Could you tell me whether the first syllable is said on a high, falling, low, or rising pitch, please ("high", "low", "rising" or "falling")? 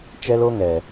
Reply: high